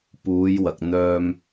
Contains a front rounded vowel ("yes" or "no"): yes